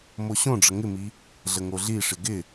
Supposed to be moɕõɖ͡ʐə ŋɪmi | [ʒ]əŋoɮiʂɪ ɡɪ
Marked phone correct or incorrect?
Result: incorrect: ɮ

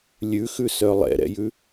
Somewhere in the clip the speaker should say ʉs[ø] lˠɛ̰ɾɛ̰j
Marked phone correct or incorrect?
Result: incorrect: œ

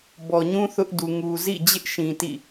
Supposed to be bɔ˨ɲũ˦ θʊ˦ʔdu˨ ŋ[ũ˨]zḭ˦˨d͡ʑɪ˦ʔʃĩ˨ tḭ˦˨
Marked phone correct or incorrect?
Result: incorrect: u˨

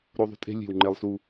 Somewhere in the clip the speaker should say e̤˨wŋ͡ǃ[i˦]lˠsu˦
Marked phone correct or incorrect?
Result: incorrect: e˦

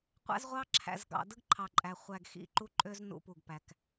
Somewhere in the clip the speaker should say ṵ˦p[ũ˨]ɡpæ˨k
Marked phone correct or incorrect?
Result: incorrect: u˨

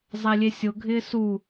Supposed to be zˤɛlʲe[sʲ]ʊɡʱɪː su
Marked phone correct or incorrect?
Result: correct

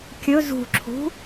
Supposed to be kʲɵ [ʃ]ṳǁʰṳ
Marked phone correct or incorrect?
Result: incorrect: z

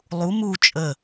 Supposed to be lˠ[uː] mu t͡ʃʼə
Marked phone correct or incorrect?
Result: incorrect: u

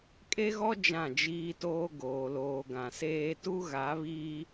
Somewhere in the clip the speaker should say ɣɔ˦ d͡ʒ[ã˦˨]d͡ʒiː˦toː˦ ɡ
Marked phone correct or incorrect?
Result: correct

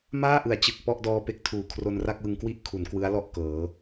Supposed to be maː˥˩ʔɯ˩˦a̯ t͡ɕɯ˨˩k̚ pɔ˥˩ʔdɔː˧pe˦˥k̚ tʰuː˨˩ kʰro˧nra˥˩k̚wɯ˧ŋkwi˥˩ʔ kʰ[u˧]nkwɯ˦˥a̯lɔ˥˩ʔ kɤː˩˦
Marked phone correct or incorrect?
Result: incorrect: u˩˦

